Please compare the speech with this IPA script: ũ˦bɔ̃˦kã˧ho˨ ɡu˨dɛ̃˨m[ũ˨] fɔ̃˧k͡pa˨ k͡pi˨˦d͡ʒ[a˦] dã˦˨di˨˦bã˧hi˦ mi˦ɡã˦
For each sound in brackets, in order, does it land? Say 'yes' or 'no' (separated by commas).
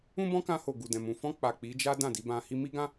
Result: yes, yes